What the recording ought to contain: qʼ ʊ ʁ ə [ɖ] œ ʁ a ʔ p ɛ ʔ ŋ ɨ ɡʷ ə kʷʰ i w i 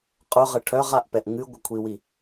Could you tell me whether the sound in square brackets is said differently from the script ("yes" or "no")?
yes